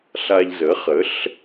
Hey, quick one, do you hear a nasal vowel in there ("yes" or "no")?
no